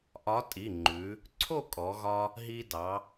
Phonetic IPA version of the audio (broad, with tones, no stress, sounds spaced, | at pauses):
ʔ ɒ˨˥ tʼ i˩˧˩ ŋ͡ǃ ʉ˩˧ | ǀʰ o˥˨ kʼ ɔ˩˧ ɣ ɒ˧ | ɦ i˧ d ɑ˩˧